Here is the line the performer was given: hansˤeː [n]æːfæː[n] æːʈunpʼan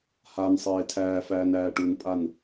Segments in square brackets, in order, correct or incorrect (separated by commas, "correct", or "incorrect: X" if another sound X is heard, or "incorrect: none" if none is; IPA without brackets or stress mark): incorrect: tʰ, correct